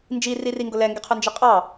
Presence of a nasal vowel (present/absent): absent